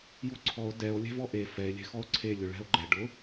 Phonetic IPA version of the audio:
j u ǀʰ ɔ o̯ d ɛ o̯ lʲ ɛ̤ v ɔ ʔ e f ɛ e̯ lʲ ɛ̤ x ɔ o̯ ǀʰ e lʲ ʊ ɭ ɛ̤ o̯ ɡ͡ǃ ɛ ɖ ʊ

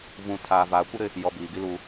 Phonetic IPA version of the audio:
v ũ˨ tʰ aː˨ v aː˨ kʷ ɪ˦ ɾ ɪ˦ | j ɔ˨ b iː˨ ɡ i˦ l uː˦

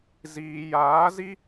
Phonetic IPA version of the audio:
z iː˨ j aː˨˦ z i˦

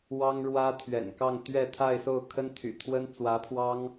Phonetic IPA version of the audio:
w ɑ˥ ŋ ɻ w ä˥ t̪ʰ ɥ ɛ̰˨˩ n k ɑ˥˧ ŋ t̪ ɥ ɛ˥˧ t̪ʰ a˥˧ ɪ̯ s o˥˩ ʊ̯ kʰ ə˥ n t̪ʰ y̰˨˩ t̪ʰ w ə˥ n t͡s w ä˧˥ pʰ w ɑ˥ ŋ

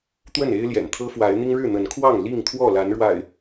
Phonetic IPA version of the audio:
t̪ w ə˥˨ n e˦ ɪ̯ l j ɛ̰˨˩ n t̪ʰ ɤ˦ f w a˨˦ ɪ̯ n̪ i˦ ŋ ɻ ɻ̩˥˨ n̪ ə˨˦ n kʰ w ɑ˥˨ ŋ l i˥˨ ŋ t̪ʰ w ɔ˥˨ l a˨˦ n ɻ w a̰˨˩ ɪ̯

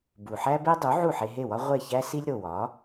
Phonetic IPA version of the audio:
b u˩ ħ æ˥ b e˥ dˤ u˩˥ ʕ u˥˩ ħ e˧ ɦ e˥˩ w ɒ˥ ʁʷ e˥˩ ç æ˥ s i˥ lʲ ɾ o˩ w ɒ˩˥

